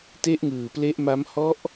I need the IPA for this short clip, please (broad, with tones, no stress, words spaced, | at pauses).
te˦˥ʔŋɯː˨˩ple˦˥ʔma˦˥m hɔ˦˥ʔ